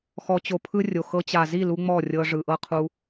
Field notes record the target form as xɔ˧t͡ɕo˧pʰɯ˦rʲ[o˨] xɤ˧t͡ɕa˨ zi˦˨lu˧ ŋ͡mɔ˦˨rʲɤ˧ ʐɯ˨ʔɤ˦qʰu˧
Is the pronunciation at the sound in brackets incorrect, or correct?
correct